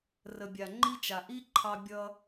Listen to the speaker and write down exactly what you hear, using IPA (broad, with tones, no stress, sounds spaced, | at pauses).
r ə˨ bʲ a˨ ŋ͡ǃ i˦ t͡ʃ a˨ ʔ i˦ ǃʰ ɑ˧ bʲ ʌ˧